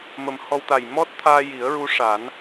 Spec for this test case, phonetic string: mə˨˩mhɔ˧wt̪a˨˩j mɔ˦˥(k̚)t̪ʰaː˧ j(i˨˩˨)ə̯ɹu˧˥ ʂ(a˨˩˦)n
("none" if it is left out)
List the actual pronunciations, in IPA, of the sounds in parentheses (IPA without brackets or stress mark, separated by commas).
t̚, i˨˩˦, a˨˩˦